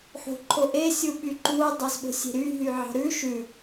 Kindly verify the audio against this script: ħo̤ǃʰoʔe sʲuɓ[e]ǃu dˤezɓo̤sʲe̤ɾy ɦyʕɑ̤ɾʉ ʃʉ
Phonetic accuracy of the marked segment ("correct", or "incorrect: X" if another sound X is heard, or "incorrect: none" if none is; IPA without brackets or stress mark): incorrect: y